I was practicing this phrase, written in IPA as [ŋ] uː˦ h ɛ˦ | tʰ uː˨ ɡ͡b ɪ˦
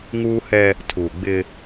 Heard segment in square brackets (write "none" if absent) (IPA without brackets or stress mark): ŋ